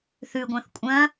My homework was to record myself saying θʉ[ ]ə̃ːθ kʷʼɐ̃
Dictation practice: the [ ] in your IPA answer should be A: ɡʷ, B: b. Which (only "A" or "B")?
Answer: A